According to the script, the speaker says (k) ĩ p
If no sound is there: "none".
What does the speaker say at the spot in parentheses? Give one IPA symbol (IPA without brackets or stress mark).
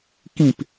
k